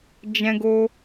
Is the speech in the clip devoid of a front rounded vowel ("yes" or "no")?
yes